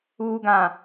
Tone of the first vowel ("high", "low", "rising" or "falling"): low